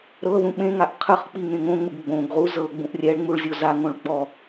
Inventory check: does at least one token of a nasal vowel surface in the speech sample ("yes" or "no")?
yes